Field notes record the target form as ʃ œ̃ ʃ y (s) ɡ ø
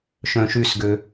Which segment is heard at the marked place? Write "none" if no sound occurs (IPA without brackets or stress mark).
s